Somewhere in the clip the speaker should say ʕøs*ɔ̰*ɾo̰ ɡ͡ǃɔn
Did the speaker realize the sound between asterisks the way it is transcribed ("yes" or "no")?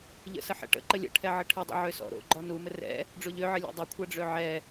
yes